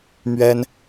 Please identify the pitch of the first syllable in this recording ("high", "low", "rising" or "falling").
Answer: high